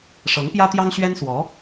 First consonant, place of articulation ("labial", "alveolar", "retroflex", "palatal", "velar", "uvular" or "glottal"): retroflex